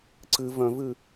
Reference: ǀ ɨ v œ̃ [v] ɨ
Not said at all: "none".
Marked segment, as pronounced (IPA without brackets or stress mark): v